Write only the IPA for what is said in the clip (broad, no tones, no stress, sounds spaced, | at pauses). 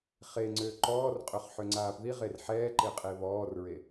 χ e ŋ͡ǀ ø ǃ ɔː r qʼ ø χ ħ ø ŋ͡ǀ aː p ð i ʁ e r ħ ɛː ǃ e qʼ e β ɔː r ɹ e